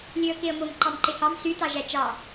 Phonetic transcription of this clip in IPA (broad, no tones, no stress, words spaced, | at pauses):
lʲøə̯keə̯mom ǃɑmǃehɑm sy tɑʒæt͡ʃɑ